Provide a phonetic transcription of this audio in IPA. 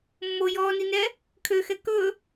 mː o j ɔː n i n ɛ | kʰ ø x ɛ k ɵ

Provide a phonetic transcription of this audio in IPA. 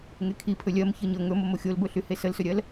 ŋ e kʰ i pʰ ɵ lʲ ɜ m ç ɤ ɲ ɤ ŋ ɵ m o m o xʲ o l b ɵ ɬ y h e s ə l s ɵ ɾʲ ɜ l

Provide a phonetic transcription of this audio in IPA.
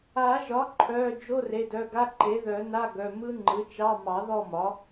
a˨˩˦ ʒ ɒ˩˥ ǃʰ œ˩˧˩ d͡ʒ o˧˥˧ r e˩˧˩ d œ˩˧˩ ɡ a˧˥˧ ǃ e˩˥ ð œ˨˩˦ n a˧˥˧ ɡ œ˩˧˩ m ɯ˦˥ ŋ͡ǃ ɯ˩˥ t͡ʃ ɑ˧˥˧ m ɑ˨˩˦ ð ɔ˦˨ m ɒ˩˥

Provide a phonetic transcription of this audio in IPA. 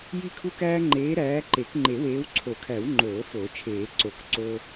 j i˦ kʰ u˦ k æː˦ ŋ͡ǃ eː˨˦ ɾ æː˨˦ ǃ e˨˩˦ k ŋ͡ǃ e˨˩˦ w eː˨˦ w ǀʰ o˨˩˦ kʰ æ˨˩˦ w ŋ͡ǃ oː˨˩˦ f oː˨˩˦ t͡ʃʰ eː˨˩˦ ǀ o˨˩˦ k ǀ o˦

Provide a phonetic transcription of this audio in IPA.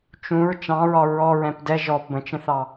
t͡ʃ ũ ɹ t͡ʃ ɑ̃ ɹ ɒ ɹ ɔ ɹ ɛ̃ p d ɛ ʒ ɔ p b ə̃ t͡ʃ ə̃ θ ɑ

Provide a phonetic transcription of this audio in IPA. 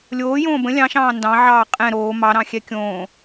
lʲ oː j õː b ə̃ lʲ ɑ̃ ʃ ɑ̃ː n d ɑ̃ ʕ ɑː qʼ ɛ̃ ɾ oː m ɑ ɾ ɑ̃ xʲ ɛ kʲ õː

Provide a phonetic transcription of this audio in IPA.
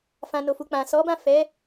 f ã˨ n o˨ f u˨ k͡p ã˨ s ɔ˨˦ b ã˦˨ f ɛ˨˦

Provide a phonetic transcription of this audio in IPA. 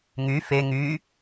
ŋ y f e ŋ y

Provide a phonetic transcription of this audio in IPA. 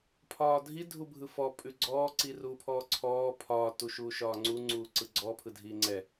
pʰ ɒː dʱ i dʱ u bʱ ɯ f ɔ pʼ ʉ ɡ͡ǀ ɔː ǀ i r uː pʰ ɔː ǀʰ ɔː pʰ ɒː t u ʃ uː ʃ ɒː ŋ͡ǀ u ŋ͡ǀ uː ǀ ɯ ɡ͡ǀ ɔ pʰ ɯ dʱ iː ŋ͡ǀ ɛ

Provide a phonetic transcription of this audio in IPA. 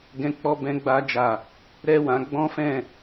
ɡ ɛ̃˧ k͡p ɔ˧ b ɛ̃˧ ɡ͡b a˧ d͡ʒ a˨ | ɾ ɛ˦ w ã˧ ɡ͡b ɔ̃˦ f ɛ̃˦˨

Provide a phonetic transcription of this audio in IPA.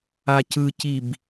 a c ɯ c i b

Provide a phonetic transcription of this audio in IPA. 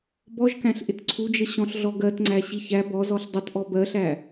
b ɔ ʒ k æ̃ ɬ ʔ ɪ t ǀʰ u d͡ʒ ə ɕ ɔ̃ ɬ ɮ ɔ ɡ ɜ t ŋ͡ǀ æ ɕ i ç æ b ɔ z ɔ ɬ dˤ ə t ʔ ɔ b ɜ ɬ æ

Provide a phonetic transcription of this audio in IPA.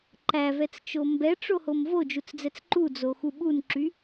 ǃ æ v ɛ t͡s t͡ʃ o m b ɛ ʈ͡ʂ o h o m v o d͡ʒ u t͡s d͡z ɛ t͡s ǃ u d͡z o x u ɓ u n ǁ y

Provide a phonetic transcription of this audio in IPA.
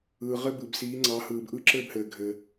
ɯː˩ ʁ ɘ˧ b ɯ˩ b s iː˩˧ ŋ͡ǀ ɑ˩˧ h ɯː˩ b ʔ ɯ˧˥ ǁ ɘː˧ b h ɘː˩ ɡʱ ɘ˩

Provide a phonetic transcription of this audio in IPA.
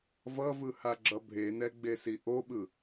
v ʌ v ɯ h a ɡ͡ǁ ʌ bʱ e n ɛ ɡ͡b e s i ʔ o ɓ ɯ

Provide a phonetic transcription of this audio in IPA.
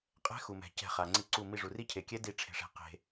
qʼ ɛ̤˦˥ x u˩ m ɛ̤˩ c ɛ̤˧˩ χ a˩ ŋ͡ǀ i˧˩ ǀ u˧˩ m i˧˩ ʐ u˩ r i˦˥ cʰ e˩ kʲ ɛ˦˥ d i˧˩ ʈ͡ʂʰ e̤˩ ʂ ɛ̤˩ q e̤˩

